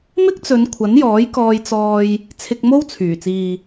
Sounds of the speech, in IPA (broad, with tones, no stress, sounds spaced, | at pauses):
m ɪ˥ k̚ t͡s ɵ˨˧ n kʷʰ ɐ˨˥ n j ɔː˨˥ j k ɔː˧ j t͡s ɔː˧ j | t͡sʰ ɪ˧ k̚ m o˥ w t͡sʰ yː˨˩ t͡s iː˨